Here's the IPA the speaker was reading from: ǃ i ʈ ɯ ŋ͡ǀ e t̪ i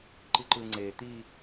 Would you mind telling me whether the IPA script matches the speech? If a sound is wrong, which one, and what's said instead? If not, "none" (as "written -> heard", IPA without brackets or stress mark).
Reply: ʈ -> ǃ